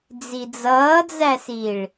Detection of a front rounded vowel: absent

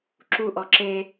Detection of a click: present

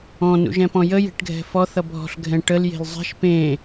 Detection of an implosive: absent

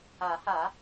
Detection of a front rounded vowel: absent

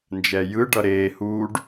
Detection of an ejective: absent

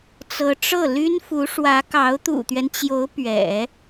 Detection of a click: absent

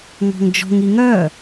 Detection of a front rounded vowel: present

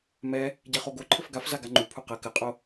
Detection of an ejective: present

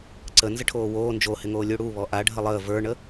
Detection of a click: present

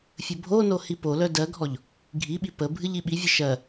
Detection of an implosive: present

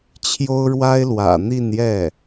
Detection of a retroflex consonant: present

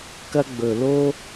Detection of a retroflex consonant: absent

